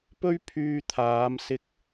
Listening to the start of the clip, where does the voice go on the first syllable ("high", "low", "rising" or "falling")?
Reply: high